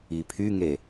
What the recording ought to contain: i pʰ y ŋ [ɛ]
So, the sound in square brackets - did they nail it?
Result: no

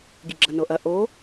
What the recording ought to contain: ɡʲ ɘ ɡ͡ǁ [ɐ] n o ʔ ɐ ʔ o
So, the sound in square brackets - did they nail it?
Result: yes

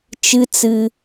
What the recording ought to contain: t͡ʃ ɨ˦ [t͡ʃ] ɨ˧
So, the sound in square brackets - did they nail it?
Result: no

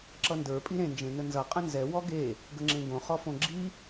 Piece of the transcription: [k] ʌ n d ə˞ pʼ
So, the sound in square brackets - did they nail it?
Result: no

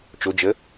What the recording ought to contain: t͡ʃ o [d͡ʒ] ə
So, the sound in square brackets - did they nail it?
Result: yes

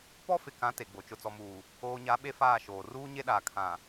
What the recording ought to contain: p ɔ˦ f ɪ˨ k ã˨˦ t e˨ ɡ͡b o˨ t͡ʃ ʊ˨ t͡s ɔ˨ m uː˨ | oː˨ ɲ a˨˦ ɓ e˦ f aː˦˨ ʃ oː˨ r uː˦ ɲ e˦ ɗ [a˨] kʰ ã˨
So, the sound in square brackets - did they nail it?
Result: no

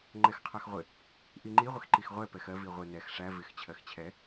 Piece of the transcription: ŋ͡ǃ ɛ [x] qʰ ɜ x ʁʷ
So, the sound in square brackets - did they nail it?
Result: yes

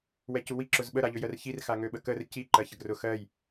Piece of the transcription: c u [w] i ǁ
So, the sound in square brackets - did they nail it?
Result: yes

